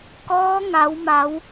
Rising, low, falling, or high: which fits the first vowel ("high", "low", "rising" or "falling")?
rising